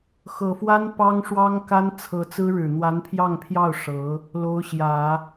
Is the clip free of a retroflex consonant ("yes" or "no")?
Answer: no